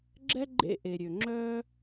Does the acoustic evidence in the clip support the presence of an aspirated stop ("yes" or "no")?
no